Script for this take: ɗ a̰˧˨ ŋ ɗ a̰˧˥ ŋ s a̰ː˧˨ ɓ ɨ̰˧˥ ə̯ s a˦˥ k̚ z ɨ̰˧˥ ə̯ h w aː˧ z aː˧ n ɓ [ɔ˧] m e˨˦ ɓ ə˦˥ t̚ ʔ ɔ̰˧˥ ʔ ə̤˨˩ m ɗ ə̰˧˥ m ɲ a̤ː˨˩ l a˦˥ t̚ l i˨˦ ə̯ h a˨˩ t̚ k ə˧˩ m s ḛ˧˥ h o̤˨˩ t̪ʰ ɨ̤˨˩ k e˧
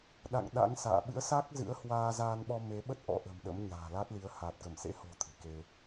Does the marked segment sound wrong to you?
no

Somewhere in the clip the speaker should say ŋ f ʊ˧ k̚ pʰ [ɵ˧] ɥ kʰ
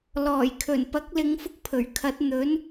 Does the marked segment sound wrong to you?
yes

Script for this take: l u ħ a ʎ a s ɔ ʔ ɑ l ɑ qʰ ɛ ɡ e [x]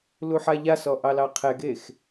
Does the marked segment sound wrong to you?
no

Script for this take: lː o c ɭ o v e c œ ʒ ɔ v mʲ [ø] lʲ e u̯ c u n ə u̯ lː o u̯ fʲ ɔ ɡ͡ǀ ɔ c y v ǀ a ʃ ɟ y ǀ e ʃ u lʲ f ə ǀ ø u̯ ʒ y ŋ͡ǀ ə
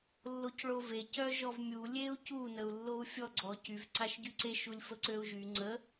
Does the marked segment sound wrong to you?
yes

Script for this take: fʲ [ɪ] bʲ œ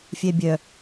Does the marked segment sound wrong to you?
yes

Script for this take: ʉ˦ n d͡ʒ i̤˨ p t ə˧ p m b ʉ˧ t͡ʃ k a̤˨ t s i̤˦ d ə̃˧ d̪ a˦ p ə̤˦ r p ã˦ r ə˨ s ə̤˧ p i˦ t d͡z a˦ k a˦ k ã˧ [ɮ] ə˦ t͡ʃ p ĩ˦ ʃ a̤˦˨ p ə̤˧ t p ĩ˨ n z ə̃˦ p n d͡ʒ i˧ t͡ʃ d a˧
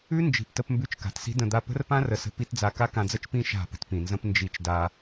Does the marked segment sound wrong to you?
yes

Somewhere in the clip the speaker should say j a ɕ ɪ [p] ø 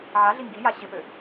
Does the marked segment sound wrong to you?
no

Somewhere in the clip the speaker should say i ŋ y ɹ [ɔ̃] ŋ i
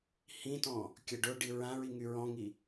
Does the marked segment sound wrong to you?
no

